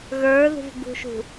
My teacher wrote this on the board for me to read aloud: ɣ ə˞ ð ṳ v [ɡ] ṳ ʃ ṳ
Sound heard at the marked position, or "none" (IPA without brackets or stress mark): ɡ